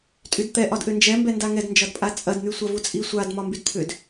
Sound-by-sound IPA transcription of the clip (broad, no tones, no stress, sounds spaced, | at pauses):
tʼ y d t̪ ɛ ʔ ɒ d ʔ ʏ n d͡ʒ ɛ m b ɛ n d a ŋ ɛ d n d͡ʒ ɒ d pʼ a t͡sʼ ɐ d n̪ y sʷ a v u t͡sʼ i sʷ a d m ɒ m b y d t̪ʰ ʏ d